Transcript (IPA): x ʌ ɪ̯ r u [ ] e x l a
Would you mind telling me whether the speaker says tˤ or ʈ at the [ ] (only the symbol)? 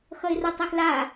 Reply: tˤ